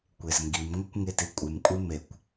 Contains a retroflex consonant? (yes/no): no